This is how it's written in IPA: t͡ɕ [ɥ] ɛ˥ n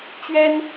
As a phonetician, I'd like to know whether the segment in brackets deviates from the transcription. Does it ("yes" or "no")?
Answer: no